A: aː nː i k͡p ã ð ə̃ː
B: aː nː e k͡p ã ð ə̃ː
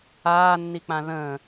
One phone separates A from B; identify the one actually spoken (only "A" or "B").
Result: A